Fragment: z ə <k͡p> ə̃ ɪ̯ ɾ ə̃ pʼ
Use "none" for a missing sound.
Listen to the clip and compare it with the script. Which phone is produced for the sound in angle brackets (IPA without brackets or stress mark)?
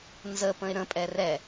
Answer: p